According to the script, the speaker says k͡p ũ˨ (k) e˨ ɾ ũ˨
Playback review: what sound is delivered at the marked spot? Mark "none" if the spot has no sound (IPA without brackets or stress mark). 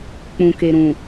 k